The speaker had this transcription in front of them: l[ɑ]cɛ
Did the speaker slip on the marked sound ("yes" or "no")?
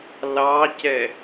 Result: no